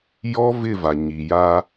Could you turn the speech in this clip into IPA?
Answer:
j ɔ˦ v ɪ˦˨ v a˨ ɲ i˨ j aː˦

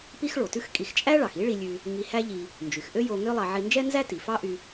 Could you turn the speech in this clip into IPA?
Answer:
p i˥ x ɭ o˩ t ʉ˥ x kʼ i˧ x t͡ʃʼ æ˥ ɭ ɑ˩ x i˥ ɭ i˧ lʲ ʉ˧ | ŋ i˧ h æ˥ ʎ i˧ | n d͡ʒ y˩ x ʔ ø˥ j o˧ ŋ ø˥ lˠ ɑ˧ ʕ i˧ n d͡ʒ ɛ˥ n z æ˥ t i˩ f ɑ˥ ʔ y˧

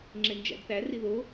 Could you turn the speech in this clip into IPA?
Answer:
ŋ͡ǁ e n d͡ʒ æ̰ d θ æ r i ð o

